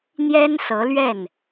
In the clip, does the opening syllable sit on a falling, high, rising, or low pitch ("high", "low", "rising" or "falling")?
high